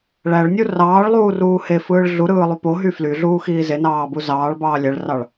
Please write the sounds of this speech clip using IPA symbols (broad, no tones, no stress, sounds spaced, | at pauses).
ɭ æ ɭ nʲ u r ɑː ɭ lˠ uː r uː h e f ɯː ɭ ɮ u ɾ ɯː lˠ y p o ɦ y f l y ɮ uː x iː z e n ɑː b u z ɑː ɭ b ɑː lʲ æ ɭ r ɑ ɭ